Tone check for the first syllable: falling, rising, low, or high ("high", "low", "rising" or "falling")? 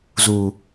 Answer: low